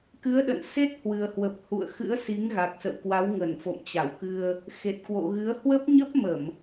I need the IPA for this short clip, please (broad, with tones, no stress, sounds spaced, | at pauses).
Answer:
k ɨ˨˦ ə̯ ɗ ə̰˧˨ n s e˦˥ t̚ h w ɨ˨˩ ə̯ h w ə˨˩ p̚ h ṵ˧˨ ə̯ x ɨ̰˧˥ ə̯ s i˨˦ ŋ ɣ a˨˩ k̚ s ə̰˧˨ w k w a˨˦ w ŋ ə˧˩ n f o̰˧˨ m t͡ɕ a˧˩ w k ɨ˧ ə̯ | x e˨˩ t̚ k w o̰˧˨ ɣ ɨ˨˦ ə̯ h w ə˦˥ p̚ ɲ ə˦˥ p̚ m ə˧˩˨ m